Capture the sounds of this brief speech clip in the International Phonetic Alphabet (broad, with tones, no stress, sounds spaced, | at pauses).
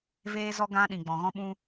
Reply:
v eː˦ z ɔ˦ ɡ ã˦ ɗ ĩ˨ ɡ͡b ɔ̃˨ ɣ ɔ̃˦ ɓ ũ˦